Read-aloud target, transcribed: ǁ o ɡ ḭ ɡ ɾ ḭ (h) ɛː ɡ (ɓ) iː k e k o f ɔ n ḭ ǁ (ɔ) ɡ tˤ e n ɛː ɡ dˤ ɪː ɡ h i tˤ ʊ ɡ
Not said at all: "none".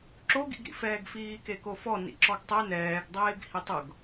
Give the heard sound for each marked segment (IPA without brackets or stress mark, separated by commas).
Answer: f, f, ɔ